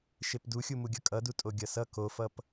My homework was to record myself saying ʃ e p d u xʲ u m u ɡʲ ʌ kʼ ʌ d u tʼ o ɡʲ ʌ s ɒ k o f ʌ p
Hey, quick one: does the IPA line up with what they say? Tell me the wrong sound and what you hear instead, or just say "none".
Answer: ɒ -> ʌ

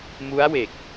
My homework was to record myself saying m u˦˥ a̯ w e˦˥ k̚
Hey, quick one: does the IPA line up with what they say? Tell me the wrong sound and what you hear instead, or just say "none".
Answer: e˦˥ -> e˨˩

